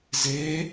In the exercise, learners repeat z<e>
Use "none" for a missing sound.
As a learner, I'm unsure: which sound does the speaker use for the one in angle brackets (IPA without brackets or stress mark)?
e